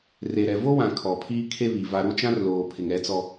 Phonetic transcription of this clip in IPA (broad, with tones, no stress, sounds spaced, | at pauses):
r e˨ ɾ ɛ˨ v o˦ w ã˨ kʰ ɔ˨ pʰ iː˦ kʰ e˦ β i˨ v a˨ ɾ u˦ t͡ʃ ã˦ r l oː˨ pʰ ɪ˨ ŋ ɛ˦ t͡s ɔ˦